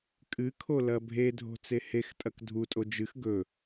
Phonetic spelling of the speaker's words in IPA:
kʼ ɨ kʰ o l ɐ bʱ e dʱ o̤ t͡s e h e x tʼ ɐ k dʱ u tʼ o d͡ʒ ɨ x ɡ ɵ

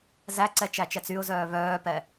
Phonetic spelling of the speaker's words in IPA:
z æ ǀ ɛ t͡ʃ æ t͡ʃ ɛ t͡s y ʊ̯ z œː β œː p ɛ

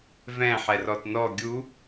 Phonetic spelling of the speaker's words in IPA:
v ɛ̃ ħ ɛ r ɔ t n ɔ ɡʲ u

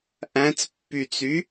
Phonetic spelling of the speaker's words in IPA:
ʔ æ̃ t͡s pː y t͡s y

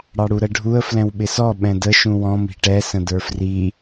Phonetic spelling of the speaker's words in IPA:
ɽ ɑ ɽ u ɾ ə ɖʱ u ə̯ f l ɛ̃ w ɓ ɪ s ɔ ɓ ɛ̃ d ə ʃ ũ w ɔ̃ m i̤ ʈ ɛ s ə̃ d ə˞ f r i

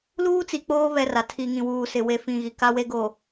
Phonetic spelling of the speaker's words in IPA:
l uː˦ t͡s i˨ k͡p oː˦ β ɛ˦ r a˨ tʰ i˨ ŋ ĩ˨ w uː˨ s ɪ˨ w e˨ f ĩ˨ ɣ i˨ k a˦ w e˦ ɡ o˨

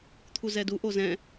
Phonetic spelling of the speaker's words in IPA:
t̪ʰ u z ɛ d u ʔ o z ɛ̃

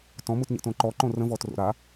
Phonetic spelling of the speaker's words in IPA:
t ɔ̃ m u t ɲ ə̰ t õ ǃ ɔ ǃ õ r ə̃ v ɔ t r o̰ ɾ a

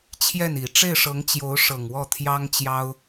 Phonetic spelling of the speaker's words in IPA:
t͡ɕʰ j ɛ˥˩ n i˨˩ ʈ͡ʂ e˥˩ ɪ̯ ʂ ɤ˧˥ ŋ t͡ɕ j o˧˥ ʊ̯ ʂ ɤ˨˩ ŋ w ɔ˥˩ t̪ʰ j ɑ˥ ŋ t͡ɕ j ɑ˥ ʊ̯

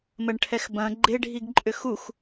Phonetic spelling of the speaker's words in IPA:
m ə ɳ ʈʰ ɛ x b ɐ̃ ɡ͡ǃ e ɖʱ i ɡ ǃʼ ʏ x u x

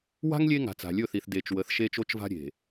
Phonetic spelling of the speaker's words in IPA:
w a̤˦ ŋ lʲ e˦ ŋ a̤˨ t͡s a̤˨ lʲ ɵ˦˨ θ i˨ θ d e˨ t͡ʃ w ə˨˦ θ ʃ e˦ t͡ʃ o˦ t͡ʃ v a̤˦ ɾʲ e̤˨

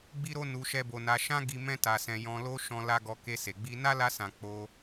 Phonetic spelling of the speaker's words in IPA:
ɡ͡b i˦ ɾ o˦ n u˧ ʃ ɛ˦ b o˧ n a˧ ʃ ã˦ ɡ i˧ m ɛ̃˦ t a˧ s ɛ̃˧ j ɔ̃˧ l o˦ ʃ ɔ̃˧ l a˦ ɡ ɔ˧ k e˧ s e˨ ɡ͡b i˧ n a˦ l a˧ s ã˨ k͡p o˧

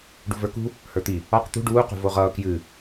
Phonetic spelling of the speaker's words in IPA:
ɖ ṳ v ə˞ k ṳ | h ə˞ t̪ i | ɒ q t̪ ṳ ɖ uː q ṳ v o ʁ ʌː k j ɨ

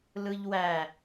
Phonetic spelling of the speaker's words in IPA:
l ɯ ʎ w æ

